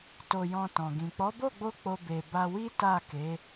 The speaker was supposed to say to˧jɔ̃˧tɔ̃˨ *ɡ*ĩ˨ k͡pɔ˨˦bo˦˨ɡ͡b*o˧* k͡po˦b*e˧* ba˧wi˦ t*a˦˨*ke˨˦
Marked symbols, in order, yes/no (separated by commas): yes, yes, yes, yes